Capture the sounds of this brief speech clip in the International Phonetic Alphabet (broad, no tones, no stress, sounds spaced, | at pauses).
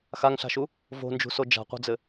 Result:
x a ŋ ɬ a̤ ʃ u | v o̤ n d͡ʒ ṳ s o d͡ʒ a̤ qʷ a̤ d͡z ɘ